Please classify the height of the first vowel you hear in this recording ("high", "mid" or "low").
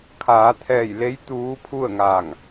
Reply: low